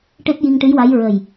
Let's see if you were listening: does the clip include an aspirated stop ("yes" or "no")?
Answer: no